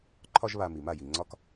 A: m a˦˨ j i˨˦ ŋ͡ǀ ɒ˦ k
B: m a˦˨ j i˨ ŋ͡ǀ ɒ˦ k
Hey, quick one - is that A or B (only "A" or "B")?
B